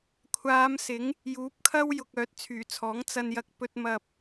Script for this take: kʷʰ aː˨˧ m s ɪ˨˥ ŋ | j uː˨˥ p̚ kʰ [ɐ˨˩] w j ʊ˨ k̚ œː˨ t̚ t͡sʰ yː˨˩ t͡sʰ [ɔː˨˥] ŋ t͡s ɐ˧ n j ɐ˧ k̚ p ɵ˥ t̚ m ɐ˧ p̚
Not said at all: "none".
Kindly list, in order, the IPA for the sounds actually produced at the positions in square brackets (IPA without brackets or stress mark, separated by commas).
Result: ɐ˥, ɔː˨˥